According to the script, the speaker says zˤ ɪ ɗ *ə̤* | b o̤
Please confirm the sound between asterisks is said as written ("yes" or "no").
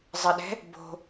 no